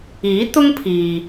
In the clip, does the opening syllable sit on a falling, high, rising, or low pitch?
rising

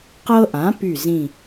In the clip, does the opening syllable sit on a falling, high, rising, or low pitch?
high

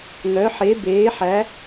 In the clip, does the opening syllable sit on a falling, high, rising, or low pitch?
rising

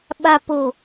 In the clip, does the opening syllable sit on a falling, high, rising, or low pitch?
low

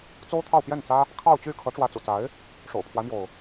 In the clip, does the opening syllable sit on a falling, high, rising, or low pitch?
high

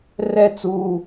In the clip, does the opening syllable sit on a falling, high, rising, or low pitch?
falling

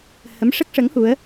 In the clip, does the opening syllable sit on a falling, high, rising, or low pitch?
rising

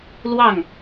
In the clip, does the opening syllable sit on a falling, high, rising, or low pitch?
falling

